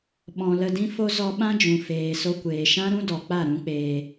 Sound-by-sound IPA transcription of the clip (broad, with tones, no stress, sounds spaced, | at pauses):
ɓ ɔ̃˨ l ə˧ d ĩ˦ f o˦ z ɔ˧ ɓ ã˦ d͡ʒ ũ˨ f eː˨ s o˧ kʷ eː˨ ʃ ã˦ ɾ ũ˦ d ɔ˨ k͡p a˦˨ ɾ ũ˦ k͡p eː˧